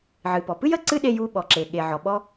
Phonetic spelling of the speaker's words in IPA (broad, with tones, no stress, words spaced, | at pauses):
ʕɨ˩pɔ˩pɨ˥j ə˥ǀɨ˥ɗe˧j u˧ ɓɔ˩ǁe˩ɠe˩ʕɔ˩ ɓɔ˧